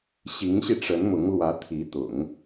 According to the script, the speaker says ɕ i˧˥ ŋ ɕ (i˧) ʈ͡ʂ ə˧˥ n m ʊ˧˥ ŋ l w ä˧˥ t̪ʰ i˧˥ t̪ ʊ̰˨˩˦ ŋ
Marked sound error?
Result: no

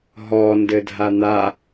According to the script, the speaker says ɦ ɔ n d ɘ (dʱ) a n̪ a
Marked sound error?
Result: no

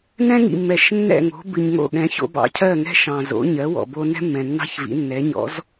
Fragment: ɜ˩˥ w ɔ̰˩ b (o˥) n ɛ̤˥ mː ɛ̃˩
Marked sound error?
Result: yes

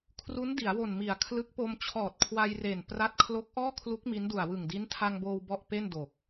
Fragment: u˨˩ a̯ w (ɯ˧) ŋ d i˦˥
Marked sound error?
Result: yes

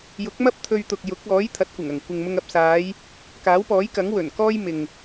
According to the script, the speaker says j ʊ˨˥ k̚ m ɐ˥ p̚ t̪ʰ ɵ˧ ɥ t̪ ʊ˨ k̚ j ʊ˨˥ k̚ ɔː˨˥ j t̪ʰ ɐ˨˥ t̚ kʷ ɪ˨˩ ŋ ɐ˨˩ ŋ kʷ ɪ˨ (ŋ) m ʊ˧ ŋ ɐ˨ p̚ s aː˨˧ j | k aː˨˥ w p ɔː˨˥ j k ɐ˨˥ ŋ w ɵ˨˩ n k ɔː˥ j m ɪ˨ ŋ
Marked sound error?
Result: no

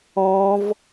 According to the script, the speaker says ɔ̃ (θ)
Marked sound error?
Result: yes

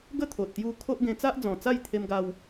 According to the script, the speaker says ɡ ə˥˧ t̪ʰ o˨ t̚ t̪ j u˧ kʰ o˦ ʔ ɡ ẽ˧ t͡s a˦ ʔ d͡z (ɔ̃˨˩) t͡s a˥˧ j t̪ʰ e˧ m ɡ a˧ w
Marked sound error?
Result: no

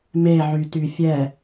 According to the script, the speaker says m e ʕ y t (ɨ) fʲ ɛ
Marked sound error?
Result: yes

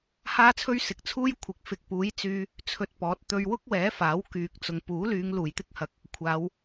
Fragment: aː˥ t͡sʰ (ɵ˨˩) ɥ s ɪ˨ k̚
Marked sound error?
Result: yes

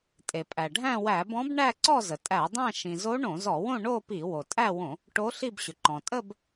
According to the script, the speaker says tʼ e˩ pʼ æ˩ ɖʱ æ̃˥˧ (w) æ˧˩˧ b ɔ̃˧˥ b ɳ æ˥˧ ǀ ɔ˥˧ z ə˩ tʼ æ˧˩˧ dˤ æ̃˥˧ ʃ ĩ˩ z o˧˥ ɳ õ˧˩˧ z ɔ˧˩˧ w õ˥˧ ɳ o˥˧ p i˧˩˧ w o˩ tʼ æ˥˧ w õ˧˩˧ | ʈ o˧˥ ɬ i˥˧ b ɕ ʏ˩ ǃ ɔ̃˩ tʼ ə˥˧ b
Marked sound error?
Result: no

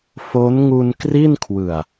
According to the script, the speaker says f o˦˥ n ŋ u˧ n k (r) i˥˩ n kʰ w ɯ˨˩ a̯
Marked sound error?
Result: no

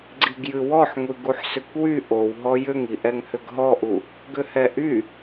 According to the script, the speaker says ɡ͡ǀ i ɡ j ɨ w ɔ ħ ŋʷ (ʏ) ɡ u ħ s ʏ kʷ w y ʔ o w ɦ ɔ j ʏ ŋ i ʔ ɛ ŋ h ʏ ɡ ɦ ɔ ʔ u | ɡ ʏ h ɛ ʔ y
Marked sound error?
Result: yes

